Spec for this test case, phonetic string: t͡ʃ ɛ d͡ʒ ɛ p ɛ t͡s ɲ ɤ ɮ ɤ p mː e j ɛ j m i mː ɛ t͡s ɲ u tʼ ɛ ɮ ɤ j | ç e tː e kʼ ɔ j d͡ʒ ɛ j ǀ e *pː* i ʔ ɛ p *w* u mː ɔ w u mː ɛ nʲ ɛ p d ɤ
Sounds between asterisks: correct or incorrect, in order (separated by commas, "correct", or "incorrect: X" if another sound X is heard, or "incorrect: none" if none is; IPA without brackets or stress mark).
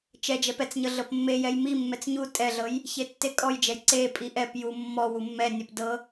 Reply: incorrect: pʼ, incorrect: j